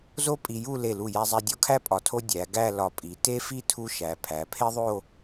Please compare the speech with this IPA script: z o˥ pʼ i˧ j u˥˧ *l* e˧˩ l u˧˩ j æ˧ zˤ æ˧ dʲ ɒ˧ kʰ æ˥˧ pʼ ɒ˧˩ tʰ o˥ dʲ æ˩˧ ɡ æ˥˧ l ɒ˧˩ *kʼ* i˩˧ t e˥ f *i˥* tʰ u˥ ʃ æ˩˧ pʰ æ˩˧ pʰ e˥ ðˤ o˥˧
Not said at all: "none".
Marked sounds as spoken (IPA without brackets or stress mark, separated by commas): l, pʼ, i˥